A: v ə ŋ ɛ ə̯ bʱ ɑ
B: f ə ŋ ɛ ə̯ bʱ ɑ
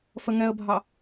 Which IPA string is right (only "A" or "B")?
B